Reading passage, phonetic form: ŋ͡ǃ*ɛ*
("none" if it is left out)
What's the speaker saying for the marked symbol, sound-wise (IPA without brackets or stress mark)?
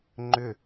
ʏ